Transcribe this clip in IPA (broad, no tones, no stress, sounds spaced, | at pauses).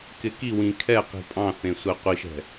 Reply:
k ɪ k i w ĩ kʰ ɛ q i̤ pʼ ɑ̃ θ ẽ sʷ ɛ qʷ i ʃ ɛ̤